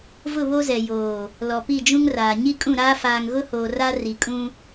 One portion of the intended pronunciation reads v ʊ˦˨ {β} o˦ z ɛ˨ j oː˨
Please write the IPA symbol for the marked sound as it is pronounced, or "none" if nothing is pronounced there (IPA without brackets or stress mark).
β